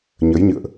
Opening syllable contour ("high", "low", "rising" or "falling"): rising